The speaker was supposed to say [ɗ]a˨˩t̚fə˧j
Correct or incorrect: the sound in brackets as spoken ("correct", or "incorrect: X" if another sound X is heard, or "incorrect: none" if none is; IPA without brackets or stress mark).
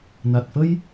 incorrect: n